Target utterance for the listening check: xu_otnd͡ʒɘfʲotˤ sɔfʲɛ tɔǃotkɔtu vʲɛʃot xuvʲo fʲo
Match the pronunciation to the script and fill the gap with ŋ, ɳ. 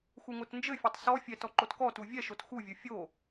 ŋ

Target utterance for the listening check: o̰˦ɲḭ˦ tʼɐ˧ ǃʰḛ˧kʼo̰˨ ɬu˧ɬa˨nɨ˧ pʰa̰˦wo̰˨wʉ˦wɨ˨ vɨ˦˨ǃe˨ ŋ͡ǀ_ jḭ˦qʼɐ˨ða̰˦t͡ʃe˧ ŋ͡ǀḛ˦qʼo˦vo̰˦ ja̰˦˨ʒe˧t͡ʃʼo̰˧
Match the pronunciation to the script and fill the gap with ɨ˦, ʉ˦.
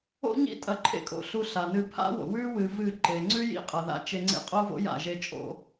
ʉ˦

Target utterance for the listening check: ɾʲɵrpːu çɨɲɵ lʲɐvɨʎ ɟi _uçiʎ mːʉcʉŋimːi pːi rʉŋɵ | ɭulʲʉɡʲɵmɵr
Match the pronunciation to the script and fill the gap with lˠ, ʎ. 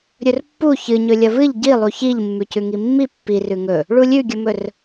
lˠ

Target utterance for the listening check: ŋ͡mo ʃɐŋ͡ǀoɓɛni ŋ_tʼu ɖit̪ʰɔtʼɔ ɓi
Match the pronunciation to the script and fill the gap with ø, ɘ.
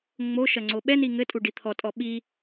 ɘ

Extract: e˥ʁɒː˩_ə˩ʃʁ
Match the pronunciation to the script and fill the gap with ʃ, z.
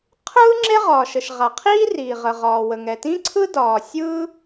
ʃ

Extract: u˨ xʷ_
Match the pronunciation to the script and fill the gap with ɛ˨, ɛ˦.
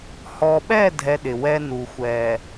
ɛ˨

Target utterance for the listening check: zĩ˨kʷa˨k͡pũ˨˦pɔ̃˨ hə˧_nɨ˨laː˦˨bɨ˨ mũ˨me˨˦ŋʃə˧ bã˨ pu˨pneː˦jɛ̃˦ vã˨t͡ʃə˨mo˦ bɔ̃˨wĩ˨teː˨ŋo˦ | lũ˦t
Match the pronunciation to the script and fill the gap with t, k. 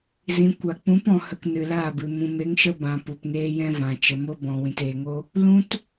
k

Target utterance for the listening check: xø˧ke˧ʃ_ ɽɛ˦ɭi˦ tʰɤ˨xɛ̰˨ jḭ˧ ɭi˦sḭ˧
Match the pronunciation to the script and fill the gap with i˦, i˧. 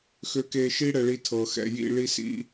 i˦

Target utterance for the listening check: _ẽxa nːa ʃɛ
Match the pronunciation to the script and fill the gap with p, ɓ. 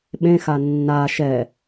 ɓ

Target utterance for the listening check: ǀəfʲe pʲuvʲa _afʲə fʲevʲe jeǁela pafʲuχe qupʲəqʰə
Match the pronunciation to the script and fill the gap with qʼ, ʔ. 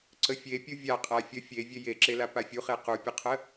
qʼ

